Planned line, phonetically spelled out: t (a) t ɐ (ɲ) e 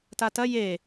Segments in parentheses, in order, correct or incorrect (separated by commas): correct, incorrect